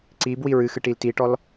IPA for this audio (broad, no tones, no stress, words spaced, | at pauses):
ǀibwi ɹɨxɨʈil tiʈɔl